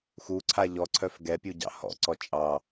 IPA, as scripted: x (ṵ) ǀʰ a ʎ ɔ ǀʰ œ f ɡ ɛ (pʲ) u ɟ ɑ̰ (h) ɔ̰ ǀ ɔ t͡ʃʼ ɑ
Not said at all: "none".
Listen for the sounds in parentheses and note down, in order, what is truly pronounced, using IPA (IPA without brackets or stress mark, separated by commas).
u, pʲ, h